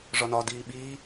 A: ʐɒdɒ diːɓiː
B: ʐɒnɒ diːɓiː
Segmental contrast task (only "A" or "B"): B